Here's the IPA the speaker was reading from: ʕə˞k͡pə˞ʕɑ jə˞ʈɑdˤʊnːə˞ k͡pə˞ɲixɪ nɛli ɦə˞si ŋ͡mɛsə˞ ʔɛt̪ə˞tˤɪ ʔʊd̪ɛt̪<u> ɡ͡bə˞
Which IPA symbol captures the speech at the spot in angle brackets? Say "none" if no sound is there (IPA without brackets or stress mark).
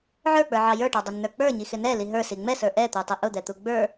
u